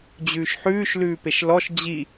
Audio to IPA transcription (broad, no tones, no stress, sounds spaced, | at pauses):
d͡ʑ ʉː ʃ ħ ʉː ʃ l ʉː p e ʃ l ɔ ʃ d͡ʑ i